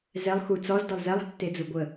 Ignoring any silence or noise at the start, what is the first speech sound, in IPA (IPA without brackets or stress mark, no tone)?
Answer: z